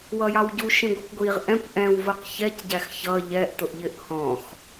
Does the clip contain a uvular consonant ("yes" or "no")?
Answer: yes